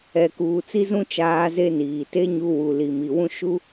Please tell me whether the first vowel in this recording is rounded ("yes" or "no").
no